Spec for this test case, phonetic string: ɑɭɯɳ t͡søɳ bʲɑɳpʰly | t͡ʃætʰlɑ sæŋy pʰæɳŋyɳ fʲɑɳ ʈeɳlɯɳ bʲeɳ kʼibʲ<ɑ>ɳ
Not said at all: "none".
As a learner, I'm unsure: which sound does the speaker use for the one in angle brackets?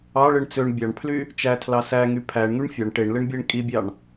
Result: ɑ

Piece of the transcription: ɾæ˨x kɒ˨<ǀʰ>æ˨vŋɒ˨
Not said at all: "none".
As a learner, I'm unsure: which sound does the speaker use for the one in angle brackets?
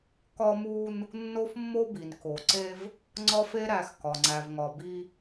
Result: ŋ͡ǀ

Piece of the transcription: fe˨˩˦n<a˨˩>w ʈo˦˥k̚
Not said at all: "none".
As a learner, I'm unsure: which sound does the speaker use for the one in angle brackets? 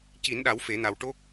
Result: a˨˩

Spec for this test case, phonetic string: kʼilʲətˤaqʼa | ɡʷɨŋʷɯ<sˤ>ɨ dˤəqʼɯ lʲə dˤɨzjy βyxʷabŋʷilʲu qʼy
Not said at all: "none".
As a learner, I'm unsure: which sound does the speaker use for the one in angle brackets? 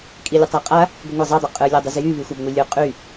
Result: zˤ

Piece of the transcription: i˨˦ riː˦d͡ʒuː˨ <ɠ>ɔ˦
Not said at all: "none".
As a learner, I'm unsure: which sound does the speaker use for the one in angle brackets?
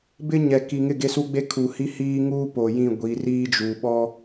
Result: ɓ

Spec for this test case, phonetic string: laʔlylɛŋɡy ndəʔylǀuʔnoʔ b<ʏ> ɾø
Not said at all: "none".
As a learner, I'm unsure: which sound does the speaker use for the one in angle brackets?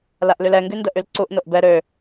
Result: ɛ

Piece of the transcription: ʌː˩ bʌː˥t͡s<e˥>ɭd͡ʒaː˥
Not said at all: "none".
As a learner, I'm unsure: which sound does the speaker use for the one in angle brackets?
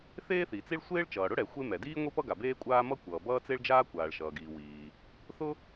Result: e˥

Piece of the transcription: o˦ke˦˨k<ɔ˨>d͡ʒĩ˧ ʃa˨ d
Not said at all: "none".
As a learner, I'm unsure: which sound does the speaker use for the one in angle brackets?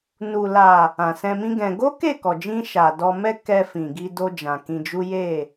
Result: ɔ˨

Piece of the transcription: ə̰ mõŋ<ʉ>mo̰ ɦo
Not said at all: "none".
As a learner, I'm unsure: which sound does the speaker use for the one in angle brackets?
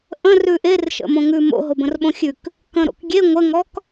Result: ʉ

